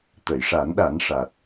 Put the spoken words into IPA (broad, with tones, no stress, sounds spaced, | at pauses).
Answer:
t̪ ə˨˩˨ j ʂ a˨˩˦ n ɗ a˨˩˦ n ʂ a˨˩ t̚